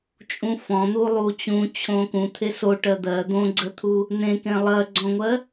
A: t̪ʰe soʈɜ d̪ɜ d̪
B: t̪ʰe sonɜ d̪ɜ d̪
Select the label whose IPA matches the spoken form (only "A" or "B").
A